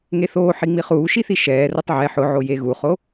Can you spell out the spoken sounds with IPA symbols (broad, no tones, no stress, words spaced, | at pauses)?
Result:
ŋeθoːħi ŋ͡miχuːʃiθi ʃɛː rʊtˤʕɛ ħʊʕo jeɣuχo